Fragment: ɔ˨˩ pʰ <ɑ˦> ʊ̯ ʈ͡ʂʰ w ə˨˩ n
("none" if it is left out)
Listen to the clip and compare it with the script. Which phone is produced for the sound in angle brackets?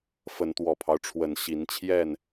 ɑ˦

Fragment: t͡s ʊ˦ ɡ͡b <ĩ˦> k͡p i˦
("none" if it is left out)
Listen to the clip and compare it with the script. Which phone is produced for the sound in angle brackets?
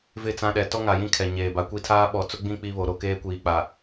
ĩ˦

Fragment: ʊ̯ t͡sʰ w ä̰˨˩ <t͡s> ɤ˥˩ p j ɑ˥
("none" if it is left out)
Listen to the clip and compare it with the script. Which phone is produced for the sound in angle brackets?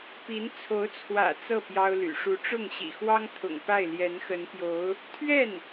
t͡s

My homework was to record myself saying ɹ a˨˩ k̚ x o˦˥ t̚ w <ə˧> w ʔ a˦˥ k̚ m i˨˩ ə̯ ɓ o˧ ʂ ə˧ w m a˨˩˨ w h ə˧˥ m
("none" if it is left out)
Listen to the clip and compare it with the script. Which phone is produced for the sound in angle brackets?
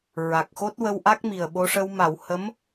ə˧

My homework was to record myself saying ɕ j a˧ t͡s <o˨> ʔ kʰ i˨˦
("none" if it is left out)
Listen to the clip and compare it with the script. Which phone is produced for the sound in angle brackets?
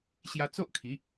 o˦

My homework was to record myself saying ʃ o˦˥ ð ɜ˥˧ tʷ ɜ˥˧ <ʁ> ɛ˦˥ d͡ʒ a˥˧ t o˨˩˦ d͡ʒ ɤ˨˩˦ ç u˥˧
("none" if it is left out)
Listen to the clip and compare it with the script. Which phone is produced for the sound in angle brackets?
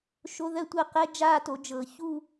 q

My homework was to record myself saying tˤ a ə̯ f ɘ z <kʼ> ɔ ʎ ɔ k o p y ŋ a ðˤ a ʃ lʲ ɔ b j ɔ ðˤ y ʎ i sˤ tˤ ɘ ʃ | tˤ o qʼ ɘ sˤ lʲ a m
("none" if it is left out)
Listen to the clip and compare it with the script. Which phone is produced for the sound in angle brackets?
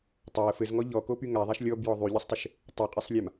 ŋ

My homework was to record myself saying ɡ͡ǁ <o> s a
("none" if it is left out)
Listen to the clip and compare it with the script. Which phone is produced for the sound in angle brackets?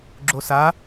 o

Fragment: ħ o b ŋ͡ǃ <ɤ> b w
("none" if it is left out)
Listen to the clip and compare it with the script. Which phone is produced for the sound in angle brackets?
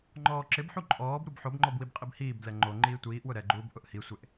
ɔ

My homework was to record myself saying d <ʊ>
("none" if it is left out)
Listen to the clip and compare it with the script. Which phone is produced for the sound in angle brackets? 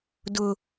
ʊ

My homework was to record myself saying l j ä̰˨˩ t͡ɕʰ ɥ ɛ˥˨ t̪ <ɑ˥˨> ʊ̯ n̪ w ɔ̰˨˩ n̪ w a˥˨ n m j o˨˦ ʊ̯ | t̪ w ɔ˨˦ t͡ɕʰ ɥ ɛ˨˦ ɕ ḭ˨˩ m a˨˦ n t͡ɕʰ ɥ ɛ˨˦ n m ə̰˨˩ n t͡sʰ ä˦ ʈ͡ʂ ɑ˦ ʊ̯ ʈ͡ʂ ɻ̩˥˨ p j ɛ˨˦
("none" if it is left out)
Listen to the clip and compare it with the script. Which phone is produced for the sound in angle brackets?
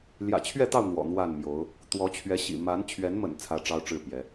ɑ˥˨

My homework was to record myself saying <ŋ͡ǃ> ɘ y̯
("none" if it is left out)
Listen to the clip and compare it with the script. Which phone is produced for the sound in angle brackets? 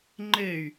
ŋ͡ǃ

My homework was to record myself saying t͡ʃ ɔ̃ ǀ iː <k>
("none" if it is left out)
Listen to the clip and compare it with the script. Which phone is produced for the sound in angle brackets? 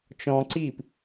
p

